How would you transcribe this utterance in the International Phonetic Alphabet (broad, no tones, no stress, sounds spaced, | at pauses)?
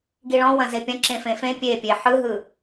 ɡ i ɭ ɔ̃ w ɐ̃ z e pʲ ɐ̃ ǁ ẽ f ẽ f ẽ pʲ e pʲ e ħ ɯ ɦ ɯ